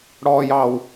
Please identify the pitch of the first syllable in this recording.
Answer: low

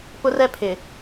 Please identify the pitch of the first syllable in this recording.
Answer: high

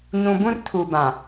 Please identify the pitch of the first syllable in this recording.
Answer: low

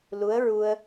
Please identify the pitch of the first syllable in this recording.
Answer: rising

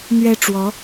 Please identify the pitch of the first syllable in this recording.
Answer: high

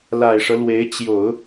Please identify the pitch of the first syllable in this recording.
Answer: low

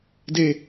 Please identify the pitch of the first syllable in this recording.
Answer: falling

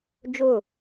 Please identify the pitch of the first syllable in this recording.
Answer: falling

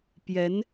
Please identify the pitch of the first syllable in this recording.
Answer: rising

